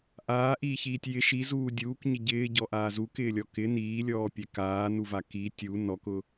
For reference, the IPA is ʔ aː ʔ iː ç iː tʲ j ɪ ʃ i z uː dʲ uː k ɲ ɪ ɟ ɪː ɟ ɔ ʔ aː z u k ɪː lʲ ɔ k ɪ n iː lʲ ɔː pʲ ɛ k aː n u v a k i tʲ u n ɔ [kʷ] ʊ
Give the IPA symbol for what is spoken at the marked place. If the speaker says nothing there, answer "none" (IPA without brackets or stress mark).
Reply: k